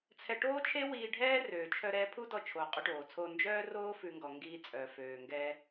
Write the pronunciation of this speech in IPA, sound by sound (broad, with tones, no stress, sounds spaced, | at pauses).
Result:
t͡sʰ ɛ˧ ʈ oː˥ t͡ʃʰ e˥ w iː˧ ɖʱ ɛː˥ r øː˩ t͡ʃʰ œ˧ ɾ ɛ˧ pʰ u˥ d ɔ˧ t͡ʃʰ oː˩ qʼ u˧ ʈ oː˩ t͡sʰ oː˧ n d͡ʒ œː˥ r oː˥ f ʉ˧ ŋ ɡ ɔ˩ ŋ ɡ iː˧ t͡sʼ œ˩ f øː˩ ŋ ɡ ɛː˧